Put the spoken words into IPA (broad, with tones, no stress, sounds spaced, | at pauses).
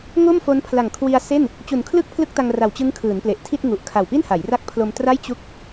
ŋ o˥˩ m f o˦˥ n pʰ l a˨˩ ŋ kʰ w i˧ a̯ s e˥˩ n | t͡ɕ u˨˩ n kʰ l ɯ˥˩ k̚ pʰ l ɯ˥˩ k̚ t a˧ ŋ r a˨˩ w t͡ɕ ɯ˦˥ ŋ kʰ ɯː˩˦ n p l e˨˩ ʔ tʰ i˥˩ t̚ ŋ u˨˩ ʔ kʰ a˨˩ w p i˥˩ n h a˩˦ j r a˦˥ k̚ pʰ l o˧ m t r a˥˩ j t͡ɕ u˥˩ k̚